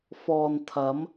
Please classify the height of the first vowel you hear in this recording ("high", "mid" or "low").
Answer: mid